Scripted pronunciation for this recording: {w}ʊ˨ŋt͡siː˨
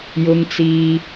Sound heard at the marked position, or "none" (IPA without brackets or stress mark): j